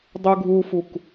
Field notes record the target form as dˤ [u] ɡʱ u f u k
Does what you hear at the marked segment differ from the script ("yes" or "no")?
no